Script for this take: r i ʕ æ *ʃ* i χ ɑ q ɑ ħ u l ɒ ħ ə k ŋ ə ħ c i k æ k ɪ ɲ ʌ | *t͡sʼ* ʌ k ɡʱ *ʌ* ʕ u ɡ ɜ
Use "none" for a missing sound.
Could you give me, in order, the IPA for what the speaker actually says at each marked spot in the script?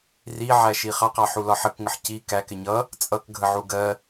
ʃ, t͡sʼ, ə

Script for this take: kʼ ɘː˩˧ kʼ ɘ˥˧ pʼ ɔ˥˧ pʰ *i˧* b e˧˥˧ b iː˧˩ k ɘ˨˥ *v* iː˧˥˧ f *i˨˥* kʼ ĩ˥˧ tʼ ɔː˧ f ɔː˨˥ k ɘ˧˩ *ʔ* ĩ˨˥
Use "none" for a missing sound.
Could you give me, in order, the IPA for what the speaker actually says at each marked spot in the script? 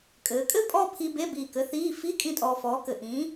i˧, θ, i˧˥˧, ʔ

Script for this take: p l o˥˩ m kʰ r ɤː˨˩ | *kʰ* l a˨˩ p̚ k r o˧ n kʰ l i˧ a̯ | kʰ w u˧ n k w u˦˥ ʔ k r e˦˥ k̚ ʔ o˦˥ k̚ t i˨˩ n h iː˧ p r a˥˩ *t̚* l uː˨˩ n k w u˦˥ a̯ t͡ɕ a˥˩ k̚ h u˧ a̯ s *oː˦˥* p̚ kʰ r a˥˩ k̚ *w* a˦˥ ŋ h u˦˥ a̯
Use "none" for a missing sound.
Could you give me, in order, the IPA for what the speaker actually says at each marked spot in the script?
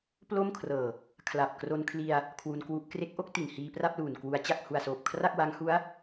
kʰ, p̚, oː˨˩, w

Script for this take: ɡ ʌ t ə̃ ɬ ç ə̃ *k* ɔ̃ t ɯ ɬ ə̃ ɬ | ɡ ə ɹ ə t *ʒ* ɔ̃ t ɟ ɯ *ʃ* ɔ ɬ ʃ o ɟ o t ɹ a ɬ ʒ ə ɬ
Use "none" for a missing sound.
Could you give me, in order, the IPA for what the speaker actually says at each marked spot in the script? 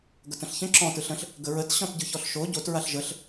ǁ, ɕ, ç

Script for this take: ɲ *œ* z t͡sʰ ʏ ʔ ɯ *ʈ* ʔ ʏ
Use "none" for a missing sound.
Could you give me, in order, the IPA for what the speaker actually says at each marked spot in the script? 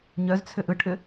œ, ʈ

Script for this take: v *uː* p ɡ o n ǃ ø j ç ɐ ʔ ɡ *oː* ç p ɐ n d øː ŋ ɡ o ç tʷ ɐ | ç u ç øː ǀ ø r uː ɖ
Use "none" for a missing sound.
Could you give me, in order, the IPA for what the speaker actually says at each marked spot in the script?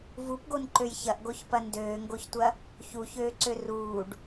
u, o

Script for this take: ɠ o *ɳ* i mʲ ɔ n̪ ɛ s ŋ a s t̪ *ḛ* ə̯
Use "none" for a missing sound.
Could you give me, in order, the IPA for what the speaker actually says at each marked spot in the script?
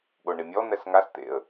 ɳ, ḛ

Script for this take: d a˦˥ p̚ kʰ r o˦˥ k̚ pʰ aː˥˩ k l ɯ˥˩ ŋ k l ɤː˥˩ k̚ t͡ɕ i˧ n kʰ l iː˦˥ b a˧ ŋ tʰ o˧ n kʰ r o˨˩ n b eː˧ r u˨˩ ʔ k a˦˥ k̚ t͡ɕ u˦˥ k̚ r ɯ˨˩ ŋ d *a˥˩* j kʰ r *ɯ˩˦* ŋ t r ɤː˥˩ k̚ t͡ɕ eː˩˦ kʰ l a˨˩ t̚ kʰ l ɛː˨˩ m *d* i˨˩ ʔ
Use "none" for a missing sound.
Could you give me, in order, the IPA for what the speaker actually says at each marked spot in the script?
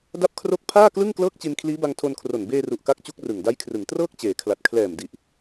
a˦˥, ɯ˩˦, d

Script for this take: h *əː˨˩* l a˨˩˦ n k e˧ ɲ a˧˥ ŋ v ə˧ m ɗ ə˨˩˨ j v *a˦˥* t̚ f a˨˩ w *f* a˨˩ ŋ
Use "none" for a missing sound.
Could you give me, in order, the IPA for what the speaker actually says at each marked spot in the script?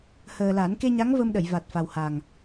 əː˨˩, a˨˩, h

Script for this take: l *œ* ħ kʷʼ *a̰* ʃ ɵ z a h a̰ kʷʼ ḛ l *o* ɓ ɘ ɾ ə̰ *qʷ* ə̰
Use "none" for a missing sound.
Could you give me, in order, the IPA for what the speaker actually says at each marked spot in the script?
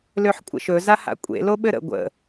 ø, ə̰, o, ɡʷ

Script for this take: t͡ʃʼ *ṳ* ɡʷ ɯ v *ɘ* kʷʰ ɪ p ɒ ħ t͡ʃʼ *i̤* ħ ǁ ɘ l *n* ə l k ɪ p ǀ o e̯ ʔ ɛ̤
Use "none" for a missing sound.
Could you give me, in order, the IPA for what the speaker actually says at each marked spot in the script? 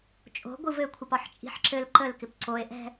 o̤, ɘ, i̤, ǃ

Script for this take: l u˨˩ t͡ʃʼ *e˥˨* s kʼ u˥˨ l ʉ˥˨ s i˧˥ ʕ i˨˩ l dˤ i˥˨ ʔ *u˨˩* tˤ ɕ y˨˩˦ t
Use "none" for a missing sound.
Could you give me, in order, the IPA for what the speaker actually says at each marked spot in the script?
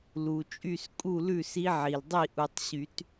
y˥˨, u˨˩

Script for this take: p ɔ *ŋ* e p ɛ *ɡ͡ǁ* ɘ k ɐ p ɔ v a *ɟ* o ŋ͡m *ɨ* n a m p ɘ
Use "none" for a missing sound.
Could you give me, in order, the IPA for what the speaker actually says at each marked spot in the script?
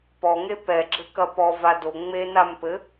ŋ, ɡ͡ǁ, d, e

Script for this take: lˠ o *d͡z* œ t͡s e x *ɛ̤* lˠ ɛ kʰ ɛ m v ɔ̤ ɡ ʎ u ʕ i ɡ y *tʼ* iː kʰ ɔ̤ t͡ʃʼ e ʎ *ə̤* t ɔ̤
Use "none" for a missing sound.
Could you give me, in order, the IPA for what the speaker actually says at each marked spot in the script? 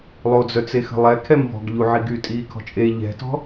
d͡z, ə̤, tʼ, ɛ̤

